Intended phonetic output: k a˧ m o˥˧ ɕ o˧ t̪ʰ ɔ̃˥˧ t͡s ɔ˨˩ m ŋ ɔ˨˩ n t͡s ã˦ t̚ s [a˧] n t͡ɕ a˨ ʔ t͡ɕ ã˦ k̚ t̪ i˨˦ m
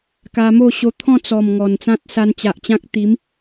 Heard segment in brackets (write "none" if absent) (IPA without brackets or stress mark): a˧